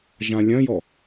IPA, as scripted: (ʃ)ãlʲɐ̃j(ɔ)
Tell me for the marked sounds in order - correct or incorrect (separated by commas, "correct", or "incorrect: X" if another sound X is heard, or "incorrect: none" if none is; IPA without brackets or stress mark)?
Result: incorrect: ʒ, correct